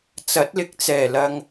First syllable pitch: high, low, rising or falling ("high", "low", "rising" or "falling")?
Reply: rising